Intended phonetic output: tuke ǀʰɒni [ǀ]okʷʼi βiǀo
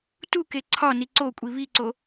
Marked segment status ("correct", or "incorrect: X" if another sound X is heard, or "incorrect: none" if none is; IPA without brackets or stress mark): correct